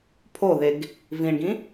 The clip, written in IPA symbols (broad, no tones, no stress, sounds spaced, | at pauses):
pʰ o ð e ɡ | v ĩ ɳ ɡ ĩ